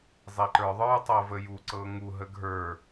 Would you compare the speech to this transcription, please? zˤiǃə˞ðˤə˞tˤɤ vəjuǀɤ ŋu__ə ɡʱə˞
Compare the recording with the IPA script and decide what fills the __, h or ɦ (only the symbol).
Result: ɦ